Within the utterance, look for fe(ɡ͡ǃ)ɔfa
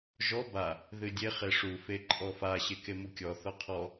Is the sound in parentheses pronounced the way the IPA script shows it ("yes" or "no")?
no